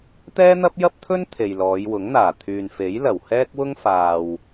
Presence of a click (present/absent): absent